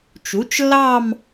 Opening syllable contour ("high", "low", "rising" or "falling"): rising